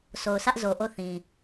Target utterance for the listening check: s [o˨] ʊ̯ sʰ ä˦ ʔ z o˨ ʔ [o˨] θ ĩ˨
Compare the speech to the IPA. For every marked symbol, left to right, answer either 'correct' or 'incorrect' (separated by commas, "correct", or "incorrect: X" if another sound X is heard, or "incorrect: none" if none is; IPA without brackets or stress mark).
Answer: correct, incorrect: o˦˨